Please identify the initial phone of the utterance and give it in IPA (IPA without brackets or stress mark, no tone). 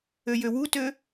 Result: ø